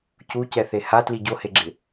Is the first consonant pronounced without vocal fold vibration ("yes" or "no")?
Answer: yes